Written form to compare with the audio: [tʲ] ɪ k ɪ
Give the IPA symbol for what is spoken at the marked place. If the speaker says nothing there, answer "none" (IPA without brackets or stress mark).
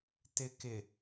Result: t